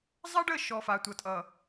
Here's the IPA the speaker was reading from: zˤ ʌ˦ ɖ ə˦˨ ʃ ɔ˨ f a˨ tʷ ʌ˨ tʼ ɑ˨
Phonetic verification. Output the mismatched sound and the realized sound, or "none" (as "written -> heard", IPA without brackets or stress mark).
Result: ɑ˨ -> ʌ˨